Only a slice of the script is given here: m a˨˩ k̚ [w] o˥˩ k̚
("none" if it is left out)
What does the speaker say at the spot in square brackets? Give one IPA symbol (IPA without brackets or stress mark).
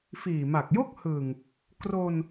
j